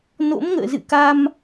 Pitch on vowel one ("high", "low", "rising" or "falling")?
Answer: rising